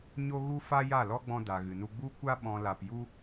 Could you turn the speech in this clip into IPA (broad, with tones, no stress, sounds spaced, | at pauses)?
ɲ o˦ ɣ u˦ f a˦ j a˦˨ l ɔ˦ ɡ͡b ɔ̃˧ d a˨ ɣ ɨ˨ n u˧ ɡ͡b u˧ kʷ a˧ ɓ ɔ̃˨ l a˧ p j u˦